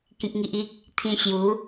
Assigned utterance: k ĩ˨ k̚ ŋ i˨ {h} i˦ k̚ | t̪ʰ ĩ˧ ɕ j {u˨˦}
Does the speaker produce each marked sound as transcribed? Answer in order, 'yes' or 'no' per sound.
no, yes

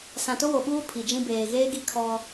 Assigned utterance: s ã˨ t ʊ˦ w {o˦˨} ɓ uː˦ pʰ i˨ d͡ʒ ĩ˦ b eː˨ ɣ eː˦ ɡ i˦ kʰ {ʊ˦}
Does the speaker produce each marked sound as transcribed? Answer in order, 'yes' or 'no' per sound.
no, no

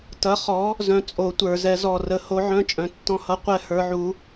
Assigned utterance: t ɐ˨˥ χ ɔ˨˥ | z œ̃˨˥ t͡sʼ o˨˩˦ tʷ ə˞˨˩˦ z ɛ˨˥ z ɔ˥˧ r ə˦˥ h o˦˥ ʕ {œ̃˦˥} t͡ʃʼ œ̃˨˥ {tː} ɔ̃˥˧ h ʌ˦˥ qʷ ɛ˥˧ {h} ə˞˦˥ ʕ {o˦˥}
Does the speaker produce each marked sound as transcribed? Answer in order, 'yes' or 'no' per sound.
yes, yes, yes, no

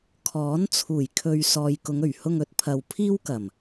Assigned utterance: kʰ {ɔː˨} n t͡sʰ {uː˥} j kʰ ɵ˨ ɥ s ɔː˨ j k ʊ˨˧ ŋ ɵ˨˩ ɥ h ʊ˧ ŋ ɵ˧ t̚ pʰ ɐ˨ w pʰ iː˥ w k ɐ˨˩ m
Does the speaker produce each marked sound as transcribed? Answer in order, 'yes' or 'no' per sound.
no, no

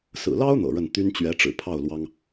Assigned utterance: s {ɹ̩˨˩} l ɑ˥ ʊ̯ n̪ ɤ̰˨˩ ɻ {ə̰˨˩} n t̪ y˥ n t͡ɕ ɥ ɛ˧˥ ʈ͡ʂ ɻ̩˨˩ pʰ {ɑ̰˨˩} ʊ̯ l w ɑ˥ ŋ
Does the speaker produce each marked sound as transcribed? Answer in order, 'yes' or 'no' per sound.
yes, no, no

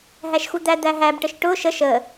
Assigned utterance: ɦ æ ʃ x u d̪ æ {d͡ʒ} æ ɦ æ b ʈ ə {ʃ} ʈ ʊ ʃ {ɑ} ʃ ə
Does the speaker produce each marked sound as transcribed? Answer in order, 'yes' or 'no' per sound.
no, yes, no

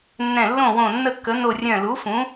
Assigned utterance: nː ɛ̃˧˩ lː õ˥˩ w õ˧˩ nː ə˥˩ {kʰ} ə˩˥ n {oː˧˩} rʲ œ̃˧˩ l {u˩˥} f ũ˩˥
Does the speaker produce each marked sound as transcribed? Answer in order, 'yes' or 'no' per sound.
no, no, yes

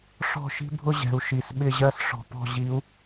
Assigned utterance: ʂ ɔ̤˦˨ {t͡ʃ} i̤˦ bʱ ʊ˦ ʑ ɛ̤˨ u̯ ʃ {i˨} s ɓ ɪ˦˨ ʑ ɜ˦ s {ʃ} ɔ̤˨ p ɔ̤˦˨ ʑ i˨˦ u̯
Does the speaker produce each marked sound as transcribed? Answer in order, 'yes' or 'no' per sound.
no, yes, no

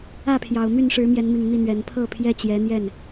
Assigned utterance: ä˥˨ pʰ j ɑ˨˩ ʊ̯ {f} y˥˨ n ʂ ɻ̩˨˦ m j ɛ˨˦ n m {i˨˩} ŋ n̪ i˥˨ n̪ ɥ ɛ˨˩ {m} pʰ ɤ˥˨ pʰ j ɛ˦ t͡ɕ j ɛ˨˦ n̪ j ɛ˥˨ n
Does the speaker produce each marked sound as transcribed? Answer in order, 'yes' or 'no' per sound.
no, yes, no

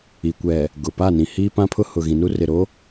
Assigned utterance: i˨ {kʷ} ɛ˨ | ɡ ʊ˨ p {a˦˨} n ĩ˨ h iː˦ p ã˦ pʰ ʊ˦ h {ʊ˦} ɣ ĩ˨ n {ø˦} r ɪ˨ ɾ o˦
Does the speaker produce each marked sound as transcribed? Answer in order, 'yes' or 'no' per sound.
yes, yes, no, no

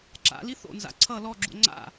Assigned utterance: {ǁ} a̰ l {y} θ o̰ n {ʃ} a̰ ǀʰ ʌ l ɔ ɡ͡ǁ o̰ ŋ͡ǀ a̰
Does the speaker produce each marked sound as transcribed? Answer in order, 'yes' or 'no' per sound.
yes, no, no

